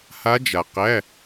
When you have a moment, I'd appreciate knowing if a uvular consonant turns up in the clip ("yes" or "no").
yes